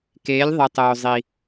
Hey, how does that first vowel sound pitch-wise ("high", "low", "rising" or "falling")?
rising